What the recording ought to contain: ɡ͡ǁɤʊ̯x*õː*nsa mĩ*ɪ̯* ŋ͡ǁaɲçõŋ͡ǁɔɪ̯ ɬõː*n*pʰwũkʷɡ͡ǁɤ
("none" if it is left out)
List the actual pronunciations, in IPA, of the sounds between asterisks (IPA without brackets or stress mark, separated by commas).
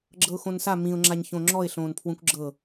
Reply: õ, ʊ̯, n